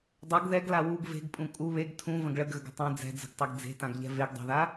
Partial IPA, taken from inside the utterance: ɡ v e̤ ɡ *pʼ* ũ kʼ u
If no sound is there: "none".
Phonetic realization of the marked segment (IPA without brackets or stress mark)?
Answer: pʼ